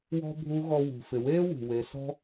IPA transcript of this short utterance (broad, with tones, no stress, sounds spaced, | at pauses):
w ɔ̤˥ bʱ u˧˥ ɣ ɔ˧ w ṳ˩ f ɪ˩ w eː˥ w ṳ˩ w e˩˧ s ɔ̤˥